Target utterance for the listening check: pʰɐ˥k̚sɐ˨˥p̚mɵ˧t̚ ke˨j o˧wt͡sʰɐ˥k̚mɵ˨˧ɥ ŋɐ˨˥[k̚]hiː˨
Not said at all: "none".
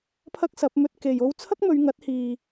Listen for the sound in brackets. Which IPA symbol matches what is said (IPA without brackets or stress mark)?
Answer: t̚